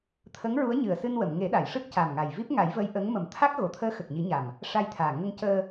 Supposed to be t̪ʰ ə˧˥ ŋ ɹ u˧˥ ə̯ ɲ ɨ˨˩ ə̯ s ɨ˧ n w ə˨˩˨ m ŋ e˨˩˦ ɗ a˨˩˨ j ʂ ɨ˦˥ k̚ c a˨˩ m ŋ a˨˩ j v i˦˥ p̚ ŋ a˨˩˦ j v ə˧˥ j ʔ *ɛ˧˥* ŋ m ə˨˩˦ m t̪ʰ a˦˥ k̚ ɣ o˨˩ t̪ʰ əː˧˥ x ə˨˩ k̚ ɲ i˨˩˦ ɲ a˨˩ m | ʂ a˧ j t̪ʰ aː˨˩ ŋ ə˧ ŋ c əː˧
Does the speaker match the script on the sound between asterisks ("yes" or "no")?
no